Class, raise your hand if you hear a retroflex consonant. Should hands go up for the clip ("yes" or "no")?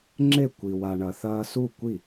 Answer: yes